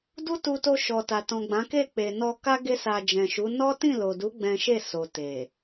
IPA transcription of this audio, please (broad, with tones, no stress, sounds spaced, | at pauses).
d u˦ t u˧ t o˧ ʃ ɔ˨ t a˨ t ɔ̃˨ ɡ͡b ã˨˦ k e˦˨ k͡p e˨ n ɔ˧ k a˦ ɡ e˦ s a˧ d͡ʒ ɛ̃˨ ʃ u˨˦ n ɔ˦ t ĩ˦˨ l o˨ d u˨˦ ɡ͡b ɛ̃˦ ʃ e˦˨ s o˨ t e˨